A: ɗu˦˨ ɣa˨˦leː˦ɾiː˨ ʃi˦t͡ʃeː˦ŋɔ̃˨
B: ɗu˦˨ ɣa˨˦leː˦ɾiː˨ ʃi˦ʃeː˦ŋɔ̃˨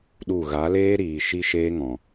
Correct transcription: B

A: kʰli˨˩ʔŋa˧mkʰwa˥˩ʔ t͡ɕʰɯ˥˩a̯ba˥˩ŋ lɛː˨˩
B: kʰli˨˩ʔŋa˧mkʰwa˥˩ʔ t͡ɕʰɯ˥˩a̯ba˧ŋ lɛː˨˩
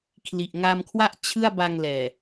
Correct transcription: B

